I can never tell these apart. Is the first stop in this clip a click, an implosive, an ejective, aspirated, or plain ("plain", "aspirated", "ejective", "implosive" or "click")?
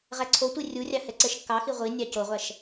click